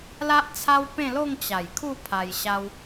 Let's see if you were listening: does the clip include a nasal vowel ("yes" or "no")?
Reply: yes